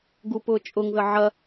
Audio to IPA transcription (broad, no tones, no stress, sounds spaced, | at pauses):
ɡ u p ʊː t͡ʃʼ ʊ ŋ ð ə ʕ ɐ